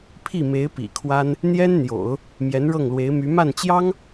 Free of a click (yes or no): yes